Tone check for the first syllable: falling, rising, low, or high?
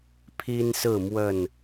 high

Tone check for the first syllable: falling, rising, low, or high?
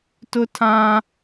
high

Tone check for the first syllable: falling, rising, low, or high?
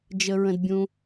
low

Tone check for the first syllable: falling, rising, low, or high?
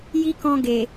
high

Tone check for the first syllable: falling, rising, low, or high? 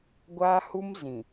high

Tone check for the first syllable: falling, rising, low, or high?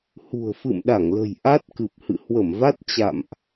low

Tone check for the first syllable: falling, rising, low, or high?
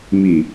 low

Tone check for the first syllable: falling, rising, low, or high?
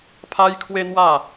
high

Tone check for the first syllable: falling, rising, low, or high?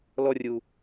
falling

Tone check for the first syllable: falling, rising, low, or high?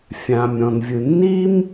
low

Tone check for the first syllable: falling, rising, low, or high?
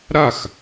falling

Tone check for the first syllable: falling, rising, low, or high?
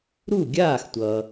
falling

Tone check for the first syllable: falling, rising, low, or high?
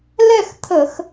falling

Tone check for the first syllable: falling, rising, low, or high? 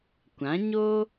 rising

